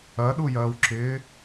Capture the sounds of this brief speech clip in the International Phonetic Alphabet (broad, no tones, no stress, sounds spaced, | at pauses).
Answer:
ɐ ɗ u j ɐː w ǁ ɪː